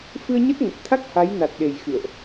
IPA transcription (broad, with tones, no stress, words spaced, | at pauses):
fɨ˧ə̯ɲə˦˥t̚ŋə˨˩t̚ t̪ʰa˦˥k̚ ha˨˦jna˨˩t̚ɗe˨˩j xɨ̰˧˨ə̯ʔ